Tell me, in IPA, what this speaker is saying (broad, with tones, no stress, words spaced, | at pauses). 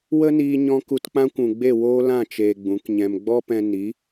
wə˦niː˧ɲɔ̃˧ ku˧tk͡pã˦kʷũ˨ɡ͡be˦˨ woː˦lã˦˨ t͡ʃeː˧ɡ͡bũ˨˦kɲɛ̃˧m ɡ͡bɔ˦pɛ̃˧ ni˨˦